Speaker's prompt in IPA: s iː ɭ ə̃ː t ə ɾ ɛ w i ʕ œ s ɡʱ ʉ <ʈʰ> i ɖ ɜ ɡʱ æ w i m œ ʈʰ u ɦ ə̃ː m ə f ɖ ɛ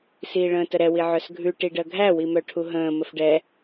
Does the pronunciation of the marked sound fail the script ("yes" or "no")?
yes